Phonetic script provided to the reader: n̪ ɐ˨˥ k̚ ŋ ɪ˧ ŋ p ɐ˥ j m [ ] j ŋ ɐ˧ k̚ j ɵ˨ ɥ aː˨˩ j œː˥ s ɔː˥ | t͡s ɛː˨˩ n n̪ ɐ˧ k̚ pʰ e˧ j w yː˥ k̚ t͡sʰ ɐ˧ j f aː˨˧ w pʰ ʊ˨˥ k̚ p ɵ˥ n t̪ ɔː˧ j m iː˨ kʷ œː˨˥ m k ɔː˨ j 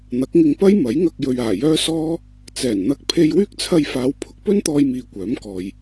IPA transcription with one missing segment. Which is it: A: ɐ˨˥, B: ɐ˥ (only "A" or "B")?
A